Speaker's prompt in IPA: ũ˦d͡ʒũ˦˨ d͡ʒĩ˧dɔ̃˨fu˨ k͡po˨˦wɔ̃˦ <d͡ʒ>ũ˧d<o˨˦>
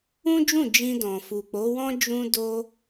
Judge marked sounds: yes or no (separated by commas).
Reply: yes, no